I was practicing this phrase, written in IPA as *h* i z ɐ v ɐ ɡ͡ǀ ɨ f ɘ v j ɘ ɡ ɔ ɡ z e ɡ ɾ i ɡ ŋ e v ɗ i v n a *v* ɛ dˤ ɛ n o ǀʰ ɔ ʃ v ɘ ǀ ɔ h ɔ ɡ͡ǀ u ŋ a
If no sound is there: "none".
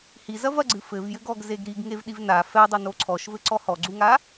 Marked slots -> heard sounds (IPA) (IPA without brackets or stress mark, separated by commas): h, f